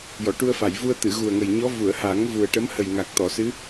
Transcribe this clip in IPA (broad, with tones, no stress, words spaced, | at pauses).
jɔ˨˩˨ʈu˧ə̯fa˨˩˨jvu˧ə̯ t̪ɨ˨˩˨ɣu˨˩ə̯ŋə˨˩jɲɔ˧˥ vu˨˩˨ə̯ha˨˩˦ŋ vu˨˩ə̯ʈə˧˥mhə˨˩j ŋa˨˩k̚t̪ɔ˨˩˨sɨ˧˥